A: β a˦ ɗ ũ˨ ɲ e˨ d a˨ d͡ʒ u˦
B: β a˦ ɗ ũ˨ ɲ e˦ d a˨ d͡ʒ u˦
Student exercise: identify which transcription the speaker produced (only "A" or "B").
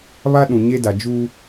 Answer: B